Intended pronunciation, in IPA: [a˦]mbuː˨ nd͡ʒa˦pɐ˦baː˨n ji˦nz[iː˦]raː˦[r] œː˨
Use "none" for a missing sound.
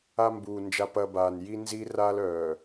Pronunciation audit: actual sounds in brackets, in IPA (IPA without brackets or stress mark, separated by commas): a˦, iː˦, l